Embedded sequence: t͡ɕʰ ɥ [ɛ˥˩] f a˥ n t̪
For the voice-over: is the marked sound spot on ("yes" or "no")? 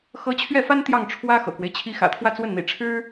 yes